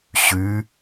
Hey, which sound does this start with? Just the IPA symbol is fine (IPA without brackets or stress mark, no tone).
ɕ